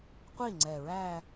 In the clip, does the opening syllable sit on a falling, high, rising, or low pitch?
falling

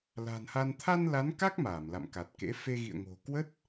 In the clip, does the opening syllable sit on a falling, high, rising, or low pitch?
low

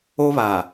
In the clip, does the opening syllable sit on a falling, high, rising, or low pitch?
high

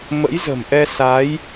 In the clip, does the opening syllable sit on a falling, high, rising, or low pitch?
rising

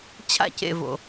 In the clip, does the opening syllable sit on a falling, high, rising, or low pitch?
falling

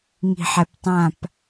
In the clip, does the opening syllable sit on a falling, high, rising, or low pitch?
low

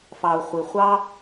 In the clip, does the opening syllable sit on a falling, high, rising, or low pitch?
low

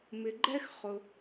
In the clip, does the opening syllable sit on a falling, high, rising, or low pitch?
low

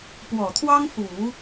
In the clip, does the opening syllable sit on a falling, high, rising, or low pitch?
low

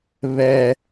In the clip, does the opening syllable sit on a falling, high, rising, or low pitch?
high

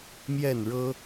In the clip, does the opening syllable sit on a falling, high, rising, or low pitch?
falling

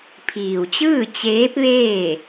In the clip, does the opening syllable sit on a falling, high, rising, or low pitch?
low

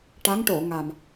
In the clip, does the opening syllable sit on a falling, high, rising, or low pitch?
rising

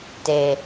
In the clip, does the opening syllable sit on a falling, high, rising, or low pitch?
low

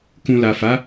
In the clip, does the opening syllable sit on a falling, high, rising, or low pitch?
low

